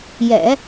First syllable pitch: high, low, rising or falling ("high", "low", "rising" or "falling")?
low